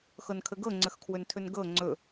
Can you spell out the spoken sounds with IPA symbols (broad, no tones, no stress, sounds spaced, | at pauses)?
x ɤ n kʰ ə ɡ ɤ ŋ͡ǀ ə x kʰ w ɵ n tʰ ɵ n ɡ ɤ ŋ͡ǀ ɵ